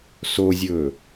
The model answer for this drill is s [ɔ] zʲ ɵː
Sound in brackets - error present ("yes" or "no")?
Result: yes